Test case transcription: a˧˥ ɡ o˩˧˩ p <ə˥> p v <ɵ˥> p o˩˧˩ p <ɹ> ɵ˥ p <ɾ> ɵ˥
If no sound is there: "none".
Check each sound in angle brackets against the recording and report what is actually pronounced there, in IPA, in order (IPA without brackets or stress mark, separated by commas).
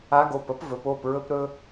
ə˥, ɵ˩˧, ɹ, ɾ